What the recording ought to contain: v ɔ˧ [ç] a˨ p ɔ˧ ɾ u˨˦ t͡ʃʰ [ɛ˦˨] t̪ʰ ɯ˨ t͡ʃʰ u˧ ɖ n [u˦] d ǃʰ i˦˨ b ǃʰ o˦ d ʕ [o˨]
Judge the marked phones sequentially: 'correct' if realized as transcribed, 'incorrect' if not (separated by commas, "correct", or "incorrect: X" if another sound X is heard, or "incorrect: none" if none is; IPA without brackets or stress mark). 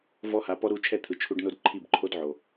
incorrect: h, correct, incorrect: o˦, correct